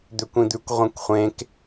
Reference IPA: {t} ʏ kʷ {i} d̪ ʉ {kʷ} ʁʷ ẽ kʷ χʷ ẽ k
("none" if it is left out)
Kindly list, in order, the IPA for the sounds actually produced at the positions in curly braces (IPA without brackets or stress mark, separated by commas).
d̪, ĩ, kʷ